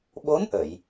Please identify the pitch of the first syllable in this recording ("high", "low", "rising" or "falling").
rising